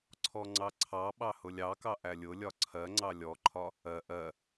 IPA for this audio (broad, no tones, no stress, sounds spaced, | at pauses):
ǀʰ ɔ ŋ͡ǀ ɑ ǀʰ ɑ ɓ ɑ h ʊ lʲ ɑ k ɑ ʔ æ lʲ ʊ lʲ ɒ ǀʰ ɜ ŋ͡ǀ ɑ lʲ ɔ ǃʰ ɒ | ɜ ʔ ɜ